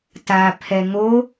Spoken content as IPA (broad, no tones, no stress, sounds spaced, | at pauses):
t a pʰ ɛ ŋ o